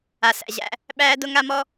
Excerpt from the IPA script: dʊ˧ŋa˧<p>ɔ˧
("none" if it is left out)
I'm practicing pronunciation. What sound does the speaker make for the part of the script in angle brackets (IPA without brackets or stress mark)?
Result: m